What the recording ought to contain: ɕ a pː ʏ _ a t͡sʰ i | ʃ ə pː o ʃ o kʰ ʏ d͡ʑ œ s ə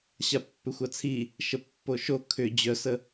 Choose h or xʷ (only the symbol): xʷ